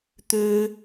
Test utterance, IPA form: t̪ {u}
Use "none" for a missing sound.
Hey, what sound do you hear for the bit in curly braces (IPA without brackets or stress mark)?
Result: ø